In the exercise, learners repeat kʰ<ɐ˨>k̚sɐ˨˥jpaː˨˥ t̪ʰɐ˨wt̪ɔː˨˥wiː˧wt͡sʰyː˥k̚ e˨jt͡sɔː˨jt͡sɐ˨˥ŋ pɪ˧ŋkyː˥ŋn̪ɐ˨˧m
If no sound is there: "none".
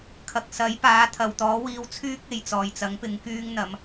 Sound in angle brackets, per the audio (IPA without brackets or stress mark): ɐ˨